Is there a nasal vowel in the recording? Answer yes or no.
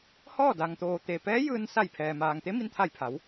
no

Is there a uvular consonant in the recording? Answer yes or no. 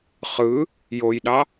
yes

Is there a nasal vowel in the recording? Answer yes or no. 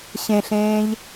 yes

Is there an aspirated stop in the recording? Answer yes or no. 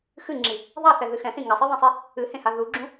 no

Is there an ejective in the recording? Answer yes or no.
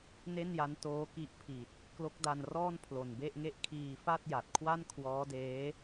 no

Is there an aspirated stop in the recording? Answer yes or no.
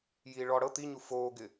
no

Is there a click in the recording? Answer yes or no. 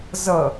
no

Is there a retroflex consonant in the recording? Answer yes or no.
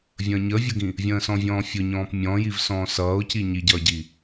no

